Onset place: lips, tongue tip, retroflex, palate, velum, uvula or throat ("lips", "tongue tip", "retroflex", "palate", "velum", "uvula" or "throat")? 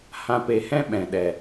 throat